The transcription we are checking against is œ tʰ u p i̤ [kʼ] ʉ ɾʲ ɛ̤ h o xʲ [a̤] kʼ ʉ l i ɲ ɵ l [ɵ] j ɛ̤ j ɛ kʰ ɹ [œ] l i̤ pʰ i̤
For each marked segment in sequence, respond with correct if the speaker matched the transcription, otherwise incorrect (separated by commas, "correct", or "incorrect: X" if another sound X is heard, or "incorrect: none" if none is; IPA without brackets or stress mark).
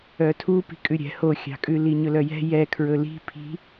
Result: correct, incorrect: ɑ̤, incorrect: œ, incorrect: ɵ